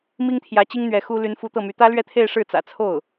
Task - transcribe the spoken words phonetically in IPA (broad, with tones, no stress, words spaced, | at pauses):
mi˥ŋt̪ʰjä˧˥t͡ɕi˥ŋ n̪ɥɛ˧˥xu˥ ly˧˥nfu˧˥t̪ɤ˥˩my˧˥ t̪ä˥lɥɛ˥˧t̪ʰe˥˧ɪ̯ ʂɻ̩˥˩t͡sä̰˨˩t͡sʰo˥˩ʊ̯